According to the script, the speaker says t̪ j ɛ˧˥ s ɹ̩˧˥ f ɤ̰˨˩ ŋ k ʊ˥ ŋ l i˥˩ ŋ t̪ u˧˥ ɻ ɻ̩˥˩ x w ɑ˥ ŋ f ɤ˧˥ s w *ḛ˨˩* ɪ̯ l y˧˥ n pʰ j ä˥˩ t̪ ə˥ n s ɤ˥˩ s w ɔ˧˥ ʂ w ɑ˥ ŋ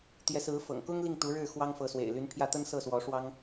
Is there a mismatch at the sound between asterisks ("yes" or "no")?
no